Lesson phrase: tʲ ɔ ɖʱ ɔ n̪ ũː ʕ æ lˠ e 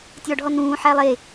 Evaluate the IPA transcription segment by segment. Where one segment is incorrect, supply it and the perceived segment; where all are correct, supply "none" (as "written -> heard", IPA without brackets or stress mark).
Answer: ʕ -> ħ